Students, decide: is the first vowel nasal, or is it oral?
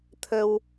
oral